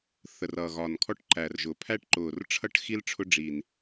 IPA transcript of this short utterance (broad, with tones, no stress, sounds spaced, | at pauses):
θ ə˨˩ r ʌ˨˩ ɣ ɒ˨˩ n kʰ ɔ˥ ʈ ǃ æ˨˩ r ʒ ʊ˨˩ pʰ æ˥ ʈ ǃ ʊː˨˩ r ʈ͡ʂʰ ʌ˥ ʈ x i˥ l ʈ͡ʂʰ ʊ˥ ɖ͡ʐ i˨˩ n